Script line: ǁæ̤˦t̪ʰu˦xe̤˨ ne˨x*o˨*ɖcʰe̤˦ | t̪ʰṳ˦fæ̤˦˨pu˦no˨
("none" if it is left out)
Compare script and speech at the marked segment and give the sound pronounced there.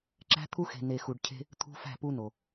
u˨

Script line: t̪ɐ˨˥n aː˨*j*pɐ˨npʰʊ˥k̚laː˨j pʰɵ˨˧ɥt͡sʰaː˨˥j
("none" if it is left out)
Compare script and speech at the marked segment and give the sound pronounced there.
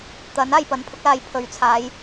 j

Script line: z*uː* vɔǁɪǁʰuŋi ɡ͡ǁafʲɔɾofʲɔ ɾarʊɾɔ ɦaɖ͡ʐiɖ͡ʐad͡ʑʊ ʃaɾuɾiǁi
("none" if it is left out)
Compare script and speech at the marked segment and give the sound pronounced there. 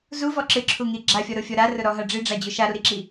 u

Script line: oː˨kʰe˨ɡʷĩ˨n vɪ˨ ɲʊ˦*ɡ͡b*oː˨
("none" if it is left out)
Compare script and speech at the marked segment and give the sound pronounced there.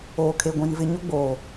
ɡ͡b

